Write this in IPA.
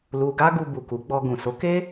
lu˧ɡa˦ɡu˧ bu˨ku˨˦ɡ͡bɔ˧ɡũ˨ so˨˦ke˦

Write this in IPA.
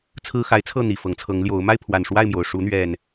t͡sʰɹ̩˦xa˨˦ɪ̯t͡sʰɤ˥˨ n̪i˨˩fɤ˨˦ŋt͡sʰɤ˨˦ŋljo˨˦ʊ̯ ma˥˨ɪ̯ pʰwa˨˩nʂwa˥˨ɪ̯mjo˩ʊ̯ ʂu˨˦n̪ɥɛ˨˩n

